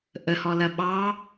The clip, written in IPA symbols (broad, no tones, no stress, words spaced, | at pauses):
ʔəhɔlɐ ɓɑ